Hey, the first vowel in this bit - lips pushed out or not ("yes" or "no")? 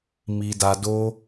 no